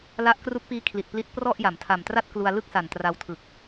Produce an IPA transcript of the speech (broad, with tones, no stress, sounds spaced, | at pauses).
l a˦˥ ʔ k r u˦˥ k̚ p iː˦˥ kʰ l i˨˩ t̚ p l i˦˥ t̚ p r ɔ˥˩ ʔ j a˩˦ m tʰ a˨˩ m t r a˥˩ t̚ k l u˧ a̯ l ɯ˥˩ k̚ s a˨˩ n t r a˧ w tʰ ɯ˨˩ k̚